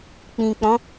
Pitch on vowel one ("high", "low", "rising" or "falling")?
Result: low